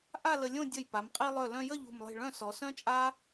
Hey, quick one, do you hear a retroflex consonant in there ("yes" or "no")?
yes